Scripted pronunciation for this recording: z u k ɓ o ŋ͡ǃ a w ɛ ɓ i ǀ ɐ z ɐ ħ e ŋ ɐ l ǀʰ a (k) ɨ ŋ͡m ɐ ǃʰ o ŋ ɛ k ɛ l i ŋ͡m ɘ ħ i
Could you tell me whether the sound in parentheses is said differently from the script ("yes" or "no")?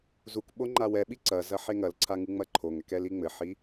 yes